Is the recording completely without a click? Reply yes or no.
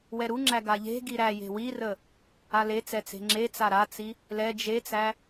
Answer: no